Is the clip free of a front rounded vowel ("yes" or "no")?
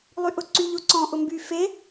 no